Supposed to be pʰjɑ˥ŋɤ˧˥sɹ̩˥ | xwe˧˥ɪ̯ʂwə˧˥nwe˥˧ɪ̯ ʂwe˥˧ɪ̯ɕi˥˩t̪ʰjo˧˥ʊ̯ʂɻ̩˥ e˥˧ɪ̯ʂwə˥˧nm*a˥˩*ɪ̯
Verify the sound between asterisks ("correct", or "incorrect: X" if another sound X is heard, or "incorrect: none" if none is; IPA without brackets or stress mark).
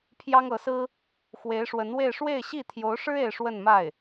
correct